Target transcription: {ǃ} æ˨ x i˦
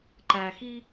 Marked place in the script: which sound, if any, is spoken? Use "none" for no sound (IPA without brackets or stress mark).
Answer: ǃ